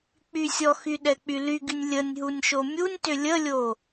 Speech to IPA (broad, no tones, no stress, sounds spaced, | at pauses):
k͡p y sʲ ɔ x y ɗ ɛ k͡p y l y ɡ y nʲ lʲ ə nʲ ɦ u nʲ ʃ o mʲ u nʲ t ʏ lʲ ə lʲ o